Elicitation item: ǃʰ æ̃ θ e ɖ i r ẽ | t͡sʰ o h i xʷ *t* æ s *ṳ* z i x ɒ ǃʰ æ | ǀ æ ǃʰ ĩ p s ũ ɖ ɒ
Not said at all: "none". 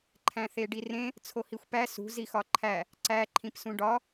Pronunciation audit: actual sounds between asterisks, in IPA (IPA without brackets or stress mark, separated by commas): p, ṳ